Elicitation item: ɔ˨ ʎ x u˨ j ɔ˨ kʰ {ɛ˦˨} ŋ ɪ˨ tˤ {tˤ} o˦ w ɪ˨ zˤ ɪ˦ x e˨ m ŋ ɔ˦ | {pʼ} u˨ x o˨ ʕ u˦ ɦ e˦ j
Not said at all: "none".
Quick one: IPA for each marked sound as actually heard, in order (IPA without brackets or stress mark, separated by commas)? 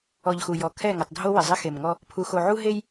ɛ˦˨, dʱ, pʰ